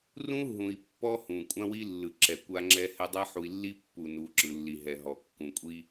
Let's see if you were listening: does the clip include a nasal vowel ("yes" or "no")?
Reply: yes